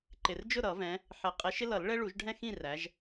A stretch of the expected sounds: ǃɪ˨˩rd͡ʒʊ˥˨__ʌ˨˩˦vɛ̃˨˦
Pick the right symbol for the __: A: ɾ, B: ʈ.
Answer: A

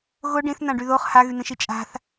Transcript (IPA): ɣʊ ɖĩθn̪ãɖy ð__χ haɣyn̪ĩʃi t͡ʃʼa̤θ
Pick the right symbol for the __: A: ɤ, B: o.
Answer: B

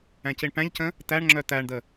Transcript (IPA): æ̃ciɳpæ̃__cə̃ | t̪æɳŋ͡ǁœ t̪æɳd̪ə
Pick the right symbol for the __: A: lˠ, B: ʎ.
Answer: B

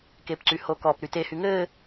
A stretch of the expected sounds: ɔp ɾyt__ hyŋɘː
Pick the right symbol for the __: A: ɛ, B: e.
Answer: B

